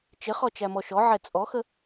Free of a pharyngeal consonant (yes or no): no